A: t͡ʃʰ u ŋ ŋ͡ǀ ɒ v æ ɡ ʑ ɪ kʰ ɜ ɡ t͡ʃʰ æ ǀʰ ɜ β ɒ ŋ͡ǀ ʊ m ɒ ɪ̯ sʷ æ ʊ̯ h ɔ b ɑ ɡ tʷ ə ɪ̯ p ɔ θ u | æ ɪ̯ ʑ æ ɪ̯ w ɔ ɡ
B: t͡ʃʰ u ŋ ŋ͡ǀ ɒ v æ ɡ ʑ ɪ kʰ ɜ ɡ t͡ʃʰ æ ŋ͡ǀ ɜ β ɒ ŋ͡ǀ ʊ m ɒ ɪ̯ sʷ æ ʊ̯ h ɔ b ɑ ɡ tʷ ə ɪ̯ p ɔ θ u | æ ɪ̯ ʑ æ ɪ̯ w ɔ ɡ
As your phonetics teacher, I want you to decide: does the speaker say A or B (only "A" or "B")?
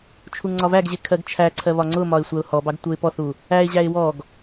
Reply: A